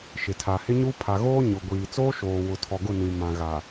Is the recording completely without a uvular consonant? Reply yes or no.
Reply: yes